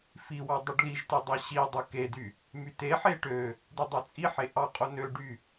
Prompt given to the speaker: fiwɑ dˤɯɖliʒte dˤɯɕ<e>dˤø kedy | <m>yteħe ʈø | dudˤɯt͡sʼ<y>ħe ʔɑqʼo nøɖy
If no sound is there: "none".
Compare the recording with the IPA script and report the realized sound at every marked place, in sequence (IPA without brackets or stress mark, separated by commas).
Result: i, m, i